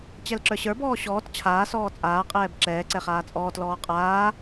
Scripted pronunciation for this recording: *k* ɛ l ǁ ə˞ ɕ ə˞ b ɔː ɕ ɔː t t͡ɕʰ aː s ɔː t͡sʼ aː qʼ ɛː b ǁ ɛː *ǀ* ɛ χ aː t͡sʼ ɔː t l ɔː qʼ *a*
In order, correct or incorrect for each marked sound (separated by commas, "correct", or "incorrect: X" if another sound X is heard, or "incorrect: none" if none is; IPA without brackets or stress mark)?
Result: incorrect: t͡ɕ, correct, incorrect: aː